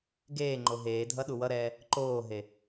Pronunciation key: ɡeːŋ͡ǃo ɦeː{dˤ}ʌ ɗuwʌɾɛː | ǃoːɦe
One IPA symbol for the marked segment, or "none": dʱ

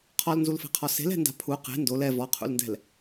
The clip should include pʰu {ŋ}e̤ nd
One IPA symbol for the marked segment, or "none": q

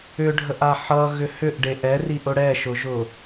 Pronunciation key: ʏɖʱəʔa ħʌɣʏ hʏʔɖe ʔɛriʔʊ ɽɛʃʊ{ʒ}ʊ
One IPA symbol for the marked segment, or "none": ʒ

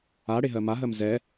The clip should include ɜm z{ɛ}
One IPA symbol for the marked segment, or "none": ɛ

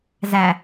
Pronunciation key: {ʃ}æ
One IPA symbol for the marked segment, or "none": z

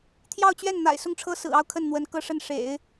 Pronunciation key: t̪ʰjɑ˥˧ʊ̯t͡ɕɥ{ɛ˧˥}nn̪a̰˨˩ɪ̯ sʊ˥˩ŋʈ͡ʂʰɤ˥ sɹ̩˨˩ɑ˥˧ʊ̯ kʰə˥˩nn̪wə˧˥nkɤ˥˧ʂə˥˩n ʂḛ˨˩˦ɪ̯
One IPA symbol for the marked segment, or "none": ɛ˥˩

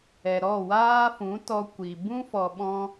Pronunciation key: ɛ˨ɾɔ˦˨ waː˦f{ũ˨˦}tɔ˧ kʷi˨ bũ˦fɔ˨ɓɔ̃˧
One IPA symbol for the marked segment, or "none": ũ˨˦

